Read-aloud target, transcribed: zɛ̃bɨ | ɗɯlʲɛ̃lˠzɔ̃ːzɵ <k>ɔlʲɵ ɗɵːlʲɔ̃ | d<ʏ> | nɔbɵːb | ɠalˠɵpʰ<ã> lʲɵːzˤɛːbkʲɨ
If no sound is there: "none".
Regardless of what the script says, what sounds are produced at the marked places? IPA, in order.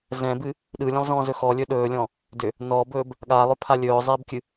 x, ʏ, a

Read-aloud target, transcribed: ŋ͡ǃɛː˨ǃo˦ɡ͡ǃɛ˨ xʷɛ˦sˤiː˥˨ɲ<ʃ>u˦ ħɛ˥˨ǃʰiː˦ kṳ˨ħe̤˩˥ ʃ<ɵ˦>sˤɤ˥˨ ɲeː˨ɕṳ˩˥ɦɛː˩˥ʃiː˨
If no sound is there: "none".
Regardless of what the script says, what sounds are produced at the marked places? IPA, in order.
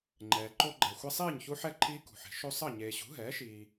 ç, o˦

